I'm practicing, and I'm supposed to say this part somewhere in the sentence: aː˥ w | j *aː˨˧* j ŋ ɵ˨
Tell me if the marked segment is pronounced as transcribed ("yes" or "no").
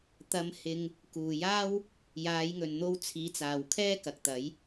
yes